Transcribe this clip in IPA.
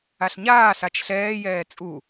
a ɬ ɲ aː s a t͡ʃ ɬ ɛː j ɛː t͡sʼ u

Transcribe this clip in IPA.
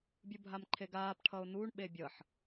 bʲ u bʱ a m ǃʰ e ɡ aː p ʈʰ ʌ ʊ̯ n uː ɳ ɓ e bʲ ʌ ħ

